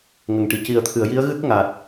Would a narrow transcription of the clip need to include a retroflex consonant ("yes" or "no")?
yes